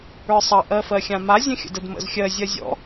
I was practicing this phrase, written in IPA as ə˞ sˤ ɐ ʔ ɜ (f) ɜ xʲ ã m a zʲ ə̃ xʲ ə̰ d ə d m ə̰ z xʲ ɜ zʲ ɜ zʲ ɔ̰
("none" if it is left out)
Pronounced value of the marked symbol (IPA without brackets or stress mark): f